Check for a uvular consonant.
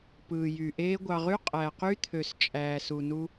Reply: present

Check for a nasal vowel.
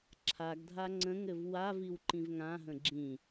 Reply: present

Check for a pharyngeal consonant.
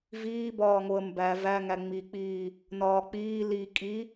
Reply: absent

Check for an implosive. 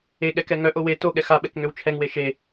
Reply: present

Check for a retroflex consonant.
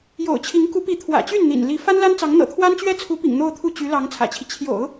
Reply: absent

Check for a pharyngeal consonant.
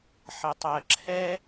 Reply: present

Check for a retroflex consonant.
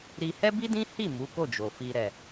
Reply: absent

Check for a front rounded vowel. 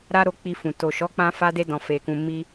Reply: absent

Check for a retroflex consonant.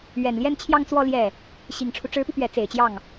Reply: present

